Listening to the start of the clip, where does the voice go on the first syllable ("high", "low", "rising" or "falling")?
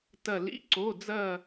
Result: falling